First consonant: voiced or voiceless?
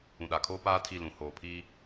voiced